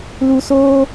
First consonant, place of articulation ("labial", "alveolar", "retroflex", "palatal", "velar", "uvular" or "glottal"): alveolar